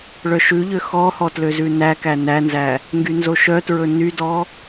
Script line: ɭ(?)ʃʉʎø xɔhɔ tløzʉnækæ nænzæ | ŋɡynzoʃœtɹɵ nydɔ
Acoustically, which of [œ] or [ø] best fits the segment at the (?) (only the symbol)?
œ